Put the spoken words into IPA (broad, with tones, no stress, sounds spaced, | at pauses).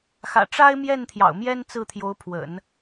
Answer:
x ä̰˨˩ ʈ͡ʂ a˥ ɪ̯ m j ɛ˥˩ n t̪ʰ j ɑ̰˨˩ ʊ̯ m j ɛ˥ n t͡s ɹ̩˥˩ t̪ʰ j o˧˥ ʊ̯ pʰ w ə̰˨˩˦ n